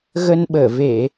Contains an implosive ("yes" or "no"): yes